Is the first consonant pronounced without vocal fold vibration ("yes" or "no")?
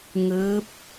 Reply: no